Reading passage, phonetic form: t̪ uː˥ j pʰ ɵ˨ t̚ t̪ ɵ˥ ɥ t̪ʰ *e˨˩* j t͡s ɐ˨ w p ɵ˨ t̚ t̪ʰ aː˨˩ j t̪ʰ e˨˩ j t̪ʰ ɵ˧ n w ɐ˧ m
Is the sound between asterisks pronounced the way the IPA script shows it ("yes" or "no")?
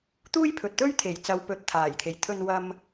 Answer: yes